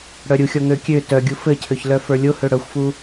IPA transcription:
ɽ œ ɾʲ u xʲ ɔ ŋ ø kʲ ø t œ ɡʲ u f ɘ cʰ ø ç l œ f ə˞ lʲ o h ø ɽ œ xʷ f u

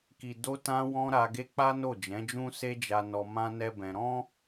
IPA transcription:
k i˨ d o˧ t ã˧ w ɔ̃˧ ɾ a˧ ɡ e˦ k͡p a˦ n o˦˨ d͡ʒ ɛ̃˨˦ d͡ʒ ũ˦ s e˦ d͡ʒ a˧ n ɔ˧ m ã˦ n ɛ˦ b ɛ̃˧ ɾ ɔ̃˦

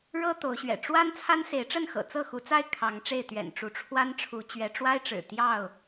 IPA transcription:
ɻ ɤ˦ t̪ o˨˦ ʊ̯ ɕ ɥ ɛ̰˨˩ ʈ͡ʂ w a˦ n t͡sʰ a˦ n s e˨˦ ɪ̯ ʈ͡ʂ ə˥˨ n x ɤ̰˨˩ t͡s ɤ˥˨ x u˨˦ t͡s a˥˨ ɪ̯ kʰ ɑ˨˦ ŋ ʈ͡ʂ e˥˨ ɪ̯ t̪ ɥ ɛ̰˨˩ n ʈ͡ʂ u˨˦ ʈ͡ʂʰ w a˦ n ʈ͡ʂʰ u˨˦ t͡ɕ ɥ ɛ˨˦ ʈ͡ʂ w a˦ ɪ̯ ʈ͡ʂ ɻ̩˨˩ t̪ j ɑ˥˨ ʊ̯

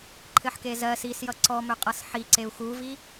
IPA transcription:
ǃʰ ɘ ħ k e z ɜ s i s j ʌ ǀ ɔ m ø qʼ ʌ s ħ i ǀ e u̯ x u v i

